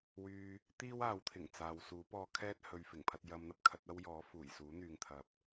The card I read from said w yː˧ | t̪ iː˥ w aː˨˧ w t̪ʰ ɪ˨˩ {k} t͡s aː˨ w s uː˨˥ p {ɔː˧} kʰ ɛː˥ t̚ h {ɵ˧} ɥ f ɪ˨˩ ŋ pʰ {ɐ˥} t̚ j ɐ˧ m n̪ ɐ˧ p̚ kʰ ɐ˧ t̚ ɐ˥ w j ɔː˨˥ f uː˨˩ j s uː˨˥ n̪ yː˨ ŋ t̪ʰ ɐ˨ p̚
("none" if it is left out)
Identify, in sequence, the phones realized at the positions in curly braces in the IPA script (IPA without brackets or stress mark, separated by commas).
ŋ, ɔː˧, ɵ˨, ɐ˧